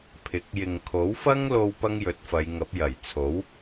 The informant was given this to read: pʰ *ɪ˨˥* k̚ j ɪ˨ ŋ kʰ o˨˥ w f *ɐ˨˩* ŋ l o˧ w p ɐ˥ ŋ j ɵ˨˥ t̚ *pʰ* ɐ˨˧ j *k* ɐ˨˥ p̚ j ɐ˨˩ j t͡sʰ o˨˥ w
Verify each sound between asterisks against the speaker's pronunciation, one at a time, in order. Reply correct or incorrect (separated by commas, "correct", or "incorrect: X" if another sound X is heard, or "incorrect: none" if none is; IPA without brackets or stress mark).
correct, incorrect: ɐ˥, incorrect: f, incorrect: ŋ